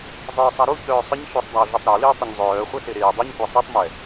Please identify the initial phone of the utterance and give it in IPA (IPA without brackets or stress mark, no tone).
zˤ